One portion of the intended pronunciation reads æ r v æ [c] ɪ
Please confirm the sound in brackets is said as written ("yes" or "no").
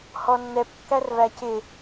yes